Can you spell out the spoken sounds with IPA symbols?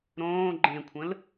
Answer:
ɾ õː ɡ͡ǃ ẽ kʷʰ ə̃ l

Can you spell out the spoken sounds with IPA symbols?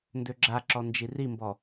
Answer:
n d ø ɡ͡ǁ a ǁ ɔ n d͡ʒ i r i m b ɔ

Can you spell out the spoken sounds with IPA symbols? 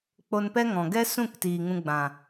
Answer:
k͡p o˧ n p ɛ˦ ŋ ɔ̃˨ ɡ ɛ˦ s ũ˦˨ k t iː˨ ŋ ũ˧ ɡ͡b ã˨

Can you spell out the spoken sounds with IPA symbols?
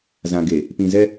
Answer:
z ã˨ ɡ e˨ | p ĩ˨ z ɛ˦

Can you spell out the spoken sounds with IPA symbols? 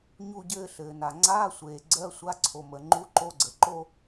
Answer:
ɲ u˥˧ ɟ ɘː˥˧ ɬ ɘː˩ n a˩ ŋ͡ǀ aː˧˥˧ sʷ eː˩ ɡ͡ǀ ɜ˧˥˧ sʷ a˧˥˧ ǀʰ o˩ m ə˩ ŋ͡ǃ u˧˥˧ ǃ o˧˥˧ ɡ͡ǀ ə˩ ǃ o˥˧

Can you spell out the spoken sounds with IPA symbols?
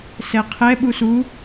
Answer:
s ɛ qʰ ɛ ɓ u s u

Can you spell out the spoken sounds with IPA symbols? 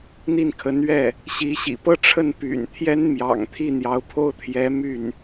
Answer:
n̪ i˥˩ n kʰ ə˧˥ n ɥ ɛ˥˩ | ɕ i˧˥ ɕ ḭ˨˩ p ɤ˥ ʈ͡ʂʰ ə˥˩ n p y̰˨˩ n t̪ʰ j ɛ˥ n m j ɑ̰˨˩ ŋ t̪ʰ i˥˩ n̪ j ɑ˧˥ ʊ̯ pʰ o˥ ʊ̯ t̪ʰ j ɛ˧˥ m y˥˩ n

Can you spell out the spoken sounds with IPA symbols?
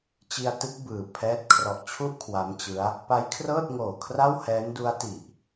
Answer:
t͡ɕ i˧ a̯ t ɯ˦˥ k̚ b ɯː˨˩ pʰ ɛː˥˩ t̚ kʰ r ɔ˨˩ ʔ t͡ɕʰ u˥˩ ʔ kʰ w a˦˥ m t͡ɕ ɯ˦˥ a̯ | p a˦˥ j kʰ r ɤː˥˩ t̚ ŋ oː˨˩ kʰ r a˥˩ w h ɛː˦˥ n d u˦˥ a̯ t i˨˩ ʔ

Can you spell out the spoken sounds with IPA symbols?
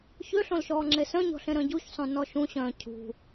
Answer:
ç ø ɬ õ l ʃ ɔː ŋ͡ǁ e s œ̃ ɲ ɔ̤ ɬ ẽ ɾ œ̃ ɟ u ç sˤ õ n ɔ ʃ ũ ɕ œ̃ː cʰ ṳ

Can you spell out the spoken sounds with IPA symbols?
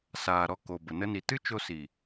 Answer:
s aː˨ ɾ ɔ˧ k o˨ b ə˨ n ə˦ n i˧ t ɨ˦ t͡ʃ o˧ s i˨

